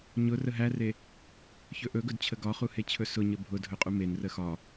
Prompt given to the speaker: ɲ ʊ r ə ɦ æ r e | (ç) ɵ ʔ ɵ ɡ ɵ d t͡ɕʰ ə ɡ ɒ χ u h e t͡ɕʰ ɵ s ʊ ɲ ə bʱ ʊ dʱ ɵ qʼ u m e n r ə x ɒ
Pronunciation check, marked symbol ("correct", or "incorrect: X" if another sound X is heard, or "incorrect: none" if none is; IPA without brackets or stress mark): correct